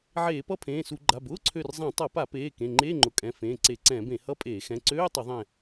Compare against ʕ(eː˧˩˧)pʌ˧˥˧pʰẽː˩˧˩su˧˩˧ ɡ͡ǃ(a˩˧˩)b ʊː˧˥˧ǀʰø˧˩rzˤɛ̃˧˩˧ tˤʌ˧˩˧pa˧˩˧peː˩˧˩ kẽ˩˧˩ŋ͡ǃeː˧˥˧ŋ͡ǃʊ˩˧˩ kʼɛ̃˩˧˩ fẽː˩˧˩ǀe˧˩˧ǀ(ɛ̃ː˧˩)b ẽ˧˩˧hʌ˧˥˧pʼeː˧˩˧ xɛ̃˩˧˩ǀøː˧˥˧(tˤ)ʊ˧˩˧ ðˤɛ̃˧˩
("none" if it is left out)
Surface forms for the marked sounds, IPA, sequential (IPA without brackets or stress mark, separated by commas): eː˧˩˧, a˩˧˩, ɛ̃ː˧˩˧, tˤ